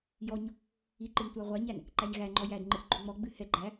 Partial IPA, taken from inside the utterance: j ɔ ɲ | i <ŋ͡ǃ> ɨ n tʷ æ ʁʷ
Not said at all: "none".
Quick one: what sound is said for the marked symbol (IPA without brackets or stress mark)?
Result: ǃ